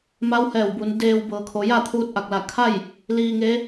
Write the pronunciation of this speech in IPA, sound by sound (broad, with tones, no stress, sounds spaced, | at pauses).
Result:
m a˧˥ w h ɛː˧˩ w b u˩˧ n d eː˧ w b ɤː˩˧ kʰ o˩˧ j a˥˨ t̪ʰ uː˧ t̚ ʔ a˧˩ k̚ l a˧˩ kʰ a˥˨ j | l iː˧ ŋ e˧˥